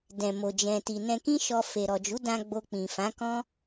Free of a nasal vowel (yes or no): no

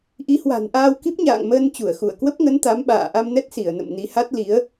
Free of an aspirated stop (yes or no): yes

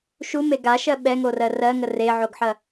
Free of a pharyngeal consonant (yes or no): no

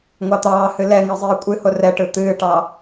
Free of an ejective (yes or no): no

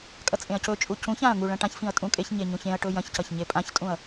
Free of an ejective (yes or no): no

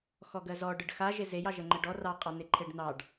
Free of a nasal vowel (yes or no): yes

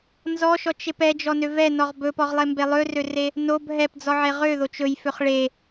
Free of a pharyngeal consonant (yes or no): no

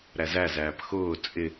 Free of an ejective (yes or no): no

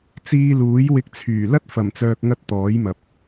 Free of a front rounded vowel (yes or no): no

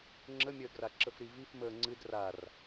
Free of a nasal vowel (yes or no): yes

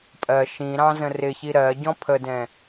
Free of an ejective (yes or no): no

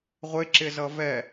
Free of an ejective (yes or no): yes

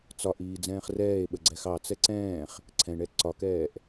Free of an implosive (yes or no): no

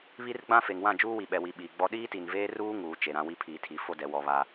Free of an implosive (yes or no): no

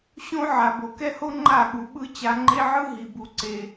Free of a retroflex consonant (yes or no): yes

